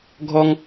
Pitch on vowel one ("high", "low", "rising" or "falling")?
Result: high